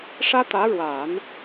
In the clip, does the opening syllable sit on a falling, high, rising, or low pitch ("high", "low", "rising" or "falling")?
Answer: high